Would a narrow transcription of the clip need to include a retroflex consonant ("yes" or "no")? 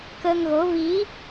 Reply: no